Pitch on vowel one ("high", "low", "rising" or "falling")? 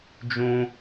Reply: high